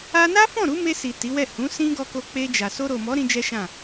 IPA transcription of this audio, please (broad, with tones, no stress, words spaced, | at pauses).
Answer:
a˧na˦fɔ̃˦˨ ɾu˨˦me˧si˨ ti˨˦wɛ˦˨ hũ˨˦ sĩ˦ɡɔ˧ko˧ k͡pe˧d͡ʒa˨ so˧ɾo˨mɔ˨˦ ɾĩ˦d͡ʒɛ˦ʃã˦˨